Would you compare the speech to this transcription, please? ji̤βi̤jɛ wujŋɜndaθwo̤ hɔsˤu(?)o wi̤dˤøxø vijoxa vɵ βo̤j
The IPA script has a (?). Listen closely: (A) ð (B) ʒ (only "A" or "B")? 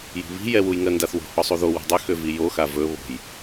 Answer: A